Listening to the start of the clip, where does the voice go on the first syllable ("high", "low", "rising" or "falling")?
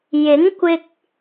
rising